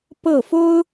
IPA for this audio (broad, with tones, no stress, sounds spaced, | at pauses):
p ɤ˥˩ f o˥ ʊ̯